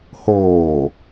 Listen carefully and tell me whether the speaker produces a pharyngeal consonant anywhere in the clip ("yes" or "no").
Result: no